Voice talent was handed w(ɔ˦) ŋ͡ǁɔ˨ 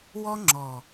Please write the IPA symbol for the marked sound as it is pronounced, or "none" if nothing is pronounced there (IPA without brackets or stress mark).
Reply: ɔ˦